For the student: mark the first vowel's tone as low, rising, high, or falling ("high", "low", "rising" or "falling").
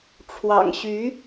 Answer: low